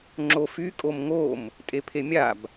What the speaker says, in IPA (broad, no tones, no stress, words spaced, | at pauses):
ŋ͡ǁofy kʼomŋom | tʼepʰemʲab